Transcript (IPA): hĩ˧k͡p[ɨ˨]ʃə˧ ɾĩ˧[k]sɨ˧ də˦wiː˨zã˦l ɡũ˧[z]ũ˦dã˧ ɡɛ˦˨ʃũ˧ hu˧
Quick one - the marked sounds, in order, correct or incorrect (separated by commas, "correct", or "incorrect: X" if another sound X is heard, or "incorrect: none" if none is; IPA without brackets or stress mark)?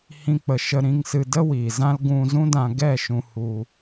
incorrect: ə˨, incorrect: ŋ, correct